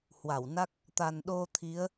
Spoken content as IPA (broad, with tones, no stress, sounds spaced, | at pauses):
h w a˧˩ w n a˦˥ k̚ | t̪ a˨˩ n ɗ o˧ t̪ʰ i˨˦ ə̯